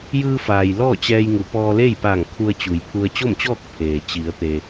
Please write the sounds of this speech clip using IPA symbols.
jɯː˧faː˩j lɔː˥˨t͡ɕɛː˧jŋu˩˧ pɔː˧le˥˨jpaː˧˩ŋkʰu˧ə̯ t͡ɕu˩jpʰu˧ə̯ t͡ɕo˥˨mt͡ɕɔː˥˨k̚ pʰeː˩ t͡ɕi˩˧ə̯t̪e˩

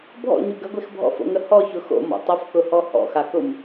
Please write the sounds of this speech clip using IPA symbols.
bʱɔ̰ɲu ɡəɡʷex bʱɔ̰fo̰ŋə hɔçʊ xo̰mɔ̰ tˤʊfkʊhɔ hɔ̰xakʊm

